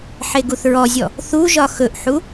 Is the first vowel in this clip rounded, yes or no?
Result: no